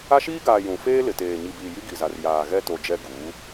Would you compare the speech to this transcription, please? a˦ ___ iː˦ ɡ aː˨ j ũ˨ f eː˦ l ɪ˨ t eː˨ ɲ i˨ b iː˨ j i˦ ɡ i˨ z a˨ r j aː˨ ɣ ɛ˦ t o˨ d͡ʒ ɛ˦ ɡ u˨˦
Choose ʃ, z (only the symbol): ʃ